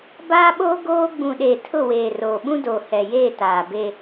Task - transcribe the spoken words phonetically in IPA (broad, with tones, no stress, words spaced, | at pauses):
baː˦ɓoː˦ ɡoː˦ ɡ͡bũ˨ɗeː˨ tʰʊ˦˨weː˨roː˨ ɓũ˦doː˨ hɛ˨jeː˦˨ taː˨be˦